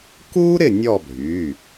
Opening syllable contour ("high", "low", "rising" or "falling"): high